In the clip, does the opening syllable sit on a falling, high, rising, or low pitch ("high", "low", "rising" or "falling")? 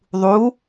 rising